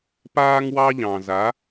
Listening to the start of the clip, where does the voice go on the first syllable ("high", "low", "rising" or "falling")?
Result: high